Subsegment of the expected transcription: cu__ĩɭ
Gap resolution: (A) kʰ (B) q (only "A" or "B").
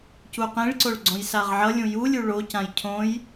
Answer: B